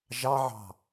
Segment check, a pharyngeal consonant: present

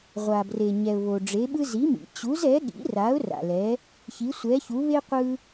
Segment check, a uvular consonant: present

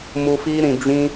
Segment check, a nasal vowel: present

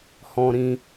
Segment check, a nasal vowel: present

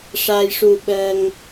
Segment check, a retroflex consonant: present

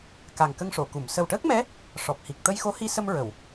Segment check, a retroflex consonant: present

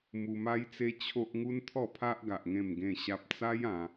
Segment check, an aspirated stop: present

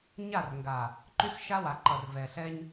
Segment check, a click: present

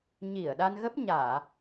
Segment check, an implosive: present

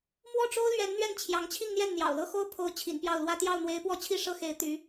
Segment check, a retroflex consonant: present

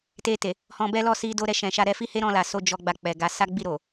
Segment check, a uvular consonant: absent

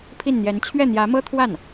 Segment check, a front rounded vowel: absent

